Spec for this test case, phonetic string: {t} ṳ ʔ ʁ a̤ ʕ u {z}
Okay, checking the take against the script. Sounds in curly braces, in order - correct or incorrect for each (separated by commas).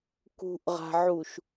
incorrect, incorrect